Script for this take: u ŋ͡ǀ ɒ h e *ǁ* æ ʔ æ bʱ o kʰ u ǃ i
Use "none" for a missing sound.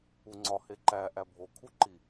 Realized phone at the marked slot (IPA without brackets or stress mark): ǃ